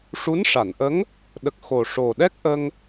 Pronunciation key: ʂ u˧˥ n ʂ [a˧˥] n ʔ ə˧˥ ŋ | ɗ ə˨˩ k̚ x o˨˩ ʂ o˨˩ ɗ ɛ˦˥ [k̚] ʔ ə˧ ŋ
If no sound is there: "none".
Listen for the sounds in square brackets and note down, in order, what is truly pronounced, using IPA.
a˨˩˨, k̚

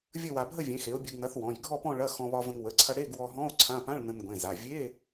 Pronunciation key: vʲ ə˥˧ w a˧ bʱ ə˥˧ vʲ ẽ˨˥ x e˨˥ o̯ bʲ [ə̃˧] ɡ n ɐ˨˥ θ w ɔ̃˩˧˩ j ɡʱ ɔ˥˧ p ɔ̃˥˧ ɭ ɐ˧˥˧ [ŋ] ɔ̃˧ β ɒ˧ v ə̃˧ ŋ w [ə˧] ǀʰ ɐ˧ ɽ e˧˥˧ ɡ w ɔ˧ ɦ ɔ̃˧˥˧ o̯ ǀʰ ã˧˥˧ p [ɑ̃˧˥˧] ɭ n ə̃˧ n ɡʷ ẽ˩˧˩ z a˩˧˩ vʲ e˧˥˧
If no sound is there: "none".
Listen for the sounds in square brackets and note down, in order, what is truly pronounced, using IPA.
ə˧, x, ə˩˧˩, ã˧˥˧

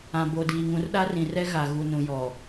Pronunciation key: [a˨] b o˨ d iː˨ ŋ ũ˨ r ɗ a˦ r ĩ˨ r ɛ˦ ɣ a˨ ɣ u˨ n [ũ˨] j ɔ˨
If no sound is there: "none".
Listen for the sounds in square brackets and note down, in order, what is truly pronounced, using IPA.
ã˨, ũ˨

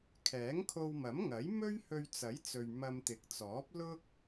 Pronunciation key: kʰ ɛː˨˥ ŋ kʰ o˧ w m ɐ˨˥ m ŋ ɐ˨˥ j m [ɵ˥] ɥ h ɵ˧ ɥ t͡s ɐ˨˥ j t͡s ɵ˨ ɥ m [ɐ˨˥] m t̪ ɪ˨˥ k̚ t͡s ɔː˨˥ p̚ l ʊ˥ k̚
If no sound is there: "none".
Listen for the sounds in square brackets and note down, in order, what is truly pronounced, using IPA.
ɵ˥, ɐ˧

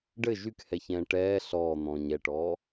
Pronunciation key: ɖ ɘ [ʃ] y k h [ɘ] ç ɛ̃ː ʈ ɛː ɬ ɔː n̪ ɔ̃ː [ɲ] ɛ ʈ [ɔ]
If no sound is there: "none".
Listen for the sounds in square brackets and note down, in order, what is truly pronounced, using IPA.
ʒ, ɛ, ɲ, ɔː

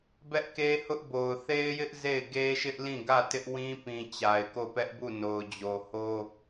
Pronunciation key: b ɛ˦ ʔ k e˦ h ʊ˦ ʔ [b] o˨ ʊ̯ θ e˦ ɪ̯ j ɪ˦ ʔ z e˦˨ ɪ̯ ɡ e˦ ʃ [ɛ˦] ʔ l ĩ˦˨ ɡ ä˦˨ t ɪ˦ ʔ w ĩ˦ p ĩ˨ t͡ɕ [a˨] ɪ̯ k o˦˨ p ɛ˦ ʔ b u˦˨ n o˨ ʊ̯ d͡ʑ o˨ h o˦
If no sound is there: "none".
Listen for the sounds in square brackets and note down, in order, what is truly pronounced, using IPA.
b, ɪ˦, a˨

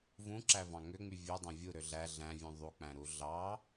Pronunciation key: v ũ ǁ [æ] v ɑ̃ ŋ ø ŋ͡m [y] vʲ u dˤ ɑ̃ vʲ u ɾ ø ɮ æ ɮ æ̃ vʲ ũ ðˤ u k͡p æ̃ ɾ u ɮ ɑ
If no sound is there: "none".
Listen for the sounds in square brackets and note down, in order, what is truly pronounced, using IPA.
æ, y

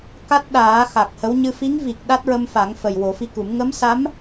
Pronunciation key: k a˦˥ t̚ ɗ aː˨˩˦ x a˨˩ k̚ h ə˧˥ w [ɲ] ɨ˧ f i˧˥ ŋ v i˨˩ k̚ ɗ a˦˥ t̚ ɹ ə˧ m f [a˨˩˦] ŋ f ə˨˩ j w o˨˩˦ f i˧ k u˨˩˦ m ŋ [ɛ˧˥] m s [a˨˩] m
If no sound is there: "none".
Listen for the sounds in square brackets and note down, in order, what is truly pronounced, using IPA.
ɲ, a˨˩˦, ə˧˥, a˧˥

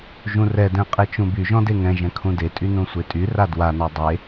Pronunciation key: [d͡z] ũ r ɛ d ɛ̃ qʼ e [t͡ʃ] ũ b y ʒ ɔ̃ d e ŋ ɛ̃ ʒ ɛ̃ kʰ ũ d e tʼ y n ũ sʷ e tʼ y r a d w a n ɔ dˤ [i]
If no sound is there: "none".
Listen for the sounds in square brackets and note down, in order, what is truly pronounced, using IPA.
ʒ, t͡ʃ, e

